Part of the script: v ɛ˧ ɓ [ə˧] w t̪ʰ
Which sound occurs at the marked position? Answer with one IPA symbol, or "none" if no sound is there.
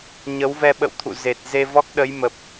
ə̰˧˨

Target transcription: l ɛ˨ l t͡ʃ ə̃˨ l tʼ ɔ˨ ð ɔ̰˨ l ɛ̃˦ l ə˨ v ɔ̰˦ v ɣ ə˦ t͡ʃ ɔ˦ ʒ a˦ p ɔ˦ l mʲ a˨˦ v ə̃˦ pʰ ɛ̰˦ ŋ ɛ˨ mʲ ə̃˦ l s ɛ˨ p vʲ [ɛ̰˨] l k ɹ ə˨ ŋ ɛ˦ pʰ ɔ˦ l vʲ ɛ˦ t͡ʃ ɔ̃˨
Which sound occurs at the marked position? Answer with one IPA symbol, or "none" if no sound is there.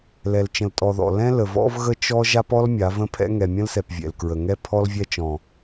ɛ̰˨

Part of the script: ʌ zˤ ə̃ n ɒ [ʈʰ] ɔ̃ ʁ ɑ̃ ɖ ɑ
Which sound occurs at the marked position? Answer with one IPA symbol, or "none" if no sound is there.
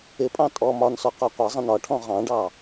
ʈʰ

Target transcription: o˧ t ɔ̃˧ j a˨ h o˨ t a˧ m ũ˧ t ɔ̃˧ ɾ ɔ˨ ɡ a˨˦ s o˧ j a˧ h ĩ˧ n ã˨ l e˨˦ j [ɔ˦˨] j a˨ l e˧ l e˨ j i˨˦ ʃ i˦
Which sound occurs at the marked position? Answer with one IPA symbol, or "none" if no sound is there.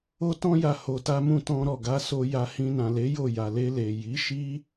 o˦˨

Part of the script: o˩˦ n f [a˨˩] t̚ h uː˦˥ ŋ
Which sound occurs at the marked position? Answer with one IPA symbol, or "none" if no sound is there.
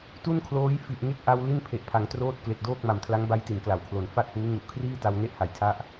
a˥˩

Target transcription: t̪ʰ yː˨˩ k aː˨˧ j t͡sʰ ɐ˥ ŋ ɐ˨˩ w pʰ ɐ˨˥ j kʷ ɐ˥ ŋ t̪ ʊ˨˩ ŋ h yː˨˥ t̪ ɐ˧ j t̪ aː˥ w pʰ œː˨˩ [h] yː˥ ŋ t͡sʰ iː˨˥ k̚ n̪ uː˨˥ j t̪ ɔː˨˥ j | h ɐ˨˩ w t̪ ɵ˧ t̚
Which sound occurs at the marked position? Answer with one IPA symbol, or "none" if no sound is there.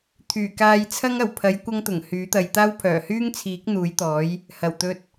h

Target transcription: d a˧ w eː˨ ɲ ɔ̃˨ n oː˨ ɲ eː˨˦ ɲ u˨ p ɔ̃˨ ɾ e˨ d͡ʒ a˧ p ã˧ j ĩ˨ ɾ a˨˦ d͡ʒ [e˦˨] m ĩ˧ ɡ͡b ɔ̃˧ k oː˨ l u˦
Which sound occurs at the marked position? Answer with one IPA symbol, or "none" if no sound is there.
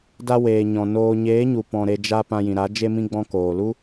e˧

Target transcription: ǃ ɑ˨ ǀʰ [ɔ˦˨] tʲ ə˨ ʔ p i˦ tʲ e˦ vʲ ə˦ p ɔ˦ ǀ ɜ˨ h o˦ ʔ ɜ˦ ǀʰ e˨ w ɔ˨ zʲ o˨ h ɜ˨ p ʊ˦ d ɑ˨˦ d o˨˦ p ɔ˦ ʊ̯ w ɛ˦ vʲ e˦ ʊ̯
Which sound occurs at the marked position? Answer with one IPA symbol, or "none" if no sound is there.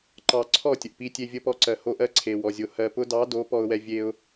ɔ˦˨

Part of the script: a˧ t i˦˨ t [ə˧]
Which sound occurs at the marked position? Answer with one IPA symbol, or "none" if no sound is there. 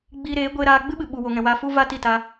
a˧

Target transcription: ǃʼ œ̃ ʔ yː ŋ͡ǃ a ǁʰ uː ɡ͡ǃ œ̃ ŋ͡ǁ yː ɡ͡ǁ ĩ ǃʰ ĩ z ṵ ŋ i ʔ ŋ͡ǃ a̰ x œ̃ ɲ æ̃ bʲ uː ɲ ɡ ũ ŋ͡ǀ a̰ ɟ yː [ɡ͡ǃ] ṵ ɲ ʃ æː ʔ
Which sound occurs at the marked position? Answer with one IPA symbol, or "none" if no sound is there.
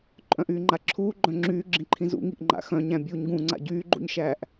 ɡ͡ǃ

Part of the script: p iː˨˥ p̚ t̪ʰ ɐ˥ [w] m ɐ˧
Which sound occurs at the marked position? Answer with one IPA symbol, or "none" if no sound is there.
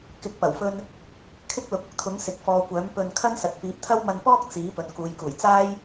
w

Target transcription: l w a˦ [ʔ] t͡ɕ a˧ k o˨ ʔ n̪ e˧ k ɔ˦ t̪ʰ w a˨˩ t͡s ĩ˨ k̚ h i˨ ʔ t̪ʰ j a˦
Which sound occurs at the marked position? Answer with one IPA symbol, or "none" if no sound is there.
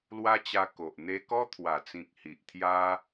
none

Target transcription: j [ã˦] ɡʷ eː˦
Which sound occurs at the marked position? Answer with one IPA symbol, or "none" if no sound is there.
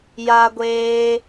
a˦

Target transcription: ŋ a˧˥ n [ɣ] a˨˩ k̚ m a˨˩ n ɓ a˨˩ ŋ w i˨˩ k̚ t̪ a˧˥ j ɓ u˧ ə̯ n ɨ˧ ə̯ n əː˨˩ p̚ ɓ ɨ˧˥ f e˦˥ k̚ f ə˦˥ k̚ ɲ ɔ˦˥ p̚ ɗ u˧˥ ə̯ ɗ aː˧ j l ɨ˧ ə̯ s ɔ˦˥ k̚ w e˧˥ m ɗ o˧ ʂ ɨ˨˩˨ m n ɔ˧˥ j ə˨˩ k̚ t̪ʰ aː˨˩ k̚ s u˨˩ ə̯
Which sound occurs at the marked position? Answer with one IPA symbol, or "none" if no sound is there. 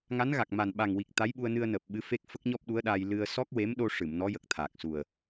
ɣ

